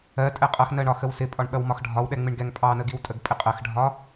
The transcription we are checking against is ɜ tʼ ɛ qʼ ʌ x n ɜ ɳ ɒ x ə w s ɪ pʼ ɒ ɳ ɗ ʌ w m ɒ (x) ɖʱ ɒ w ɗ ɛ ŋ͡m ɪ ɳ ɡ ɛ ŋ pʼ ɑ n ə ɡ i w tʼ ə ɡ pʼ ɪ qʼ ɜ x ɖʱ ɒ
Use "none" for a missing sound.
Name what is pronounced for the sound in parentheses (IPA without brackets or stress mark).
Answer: x